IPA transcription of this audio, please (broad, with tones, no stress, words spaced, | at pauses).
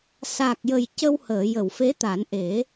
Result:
saː˨˩k̚jə˨˩j cə˧whəː˨˩˨jə˨˩˨wfe˧˥ t̪a˨˩˦nʔe˨˩˦